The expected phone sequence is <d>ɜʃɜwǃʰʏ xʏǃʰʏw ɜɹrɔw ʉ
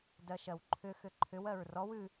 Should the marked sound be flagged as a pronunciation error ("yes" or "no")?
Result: no